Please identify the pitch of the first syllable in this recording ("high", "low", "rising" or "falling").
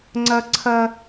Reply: high